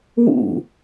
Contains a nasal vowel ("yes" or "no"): no